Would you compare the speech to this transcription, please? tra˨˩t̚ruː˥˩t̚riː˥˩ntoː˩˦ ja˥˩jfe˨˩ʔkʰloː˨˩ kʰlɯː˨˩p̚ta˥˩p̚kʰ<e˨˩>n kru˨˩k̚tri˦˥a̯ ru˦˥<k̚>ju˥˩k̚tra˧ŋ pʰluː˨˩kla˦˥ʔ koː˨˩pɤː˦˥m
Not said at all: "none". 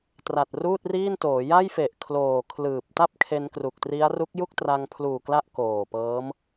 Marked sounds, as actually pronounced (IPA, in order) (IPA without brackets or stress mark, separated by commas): e˧, k̚